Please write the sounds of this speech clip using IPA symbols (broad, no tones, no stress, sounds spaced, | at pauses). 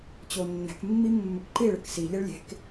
t͡ɕ o nː ɛ̤ k mː i mː ɵ k ǃ i ɭ ɘ k s i ʎ e ɭ lʲ e̤ k